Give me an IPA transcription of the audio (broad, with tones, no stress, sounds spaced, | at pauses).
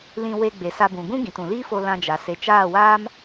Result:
l ĩ˧ w e˧ ɡ͡b e˨ s a˧ b ũ˨ ɡ ũ˦ ɡ ĩ˨ t ũ˨ l iː˦ f o˧ l ã˧ d͡ʒ a˨ s e˨ t͡ʃ aː˦˨ w aː˦ m